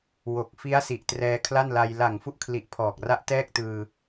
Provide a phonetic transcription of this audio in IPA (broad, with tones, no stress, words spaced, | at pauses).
wo˨˩k̚fi˦˥a̯si˨˩ʔ trɛː˧kʰla˥˩nla˧j la˨˩ŋfu˦˥ʔkʰli˨˩ʔ pʰɔː˨˩k̚ra˦˥ʔtɛː˥˩k̚tɯː˧